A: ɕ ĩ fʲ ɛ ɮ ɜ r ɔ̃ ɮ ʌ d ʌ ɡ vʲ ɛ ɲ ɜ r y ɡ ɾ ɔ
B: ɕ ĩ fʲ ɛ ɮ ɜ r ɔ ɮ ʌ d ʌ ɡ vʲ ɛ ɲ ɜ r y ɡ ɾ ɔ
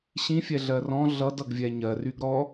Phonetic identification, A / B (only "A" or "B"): A